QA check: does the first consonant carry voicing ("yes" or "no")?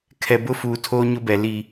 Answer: no